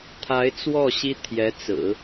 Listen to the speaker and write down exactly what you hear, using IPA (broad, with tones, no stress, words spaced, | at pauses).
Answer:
t̪ʰa˧˥ɪ̯t͡swɔ˥˩ ɕi˥t̪ʰjɛ˧˥t͡sɹ̩˨˩˦